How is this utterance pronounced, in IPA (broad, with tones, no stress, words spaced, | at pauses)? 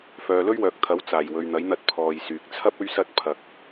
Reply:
fœː˨lɵ˥ɥwœː˨k̚t̪ʰɐ˨˥w t͡saː˨˩jwɵ˨ɥn̪ɐ˨˥jn̪ɐ˧t̚ pʰɔː˨jsyː˨k̚t͡sʰɐ˥p̚ ɵ˥ɥsɐ˥t̚ pʰɐ˧k̚